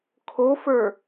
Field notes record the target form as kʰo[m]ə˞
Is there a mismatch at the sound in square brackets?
yes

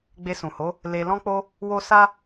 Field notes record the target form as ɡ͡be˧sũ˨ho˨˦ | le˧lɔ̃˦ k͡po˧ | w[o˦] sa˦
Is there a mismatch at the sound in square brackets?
no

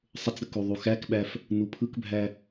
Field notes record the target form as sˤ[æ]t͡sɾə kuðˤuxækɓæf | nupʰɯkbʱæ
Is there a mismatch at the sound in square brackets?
yes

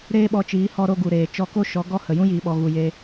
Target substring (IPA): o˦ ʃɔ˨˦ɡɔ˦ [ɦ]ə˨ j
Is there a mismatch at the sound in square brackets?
yes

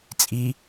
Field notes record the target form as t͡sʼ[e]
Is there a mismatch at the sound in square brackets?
yes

